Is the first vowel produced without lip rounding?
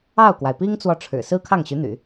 yes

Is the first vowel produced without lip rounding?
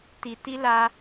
yes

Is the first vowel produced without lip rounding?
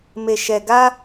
yes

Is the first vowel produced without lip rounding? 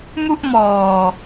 no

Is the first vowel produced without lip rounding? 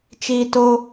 yes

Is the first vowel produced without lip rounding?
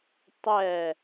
yes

